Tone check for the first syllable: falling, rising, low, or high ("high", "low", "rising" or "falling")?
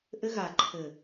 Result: high